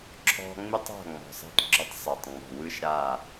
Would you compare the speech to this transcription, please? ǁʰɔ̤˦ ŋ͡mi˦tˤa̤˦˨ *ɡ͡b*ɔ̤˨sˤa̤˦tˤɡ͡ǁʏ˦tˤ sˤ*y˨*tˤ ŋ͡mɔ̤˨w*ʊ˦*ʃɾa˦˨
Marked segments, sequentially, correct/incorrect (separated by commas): incorrect, incorrect, incorrect